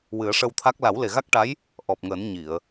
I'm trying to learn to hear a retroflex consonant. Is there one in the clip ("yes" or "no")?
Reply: yes